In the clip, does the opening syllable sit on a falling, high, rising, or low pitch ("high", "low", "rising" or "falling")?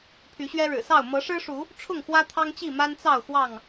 rising